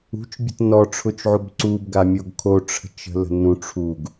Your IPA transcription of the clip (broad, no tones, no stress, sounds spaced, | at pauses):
ṳ t͡ʃ bʲ ə̤ t n ɔ ʈ͡ʂʰ ʊ t͡ʃ ʕ o b ǀ u b ɡ a mʲ o ɡ kʰ o ʈ͡ʂʰ ə̤ t͡ʃ ə̤ l ə̤ n ũ ʈ͡ʂʰ u ɡ